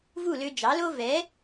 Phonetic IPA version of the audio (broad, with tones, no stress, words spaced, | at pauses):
vu˥˩lø˧d͡ʒɑ˩˥lo˥ vɛ˩˥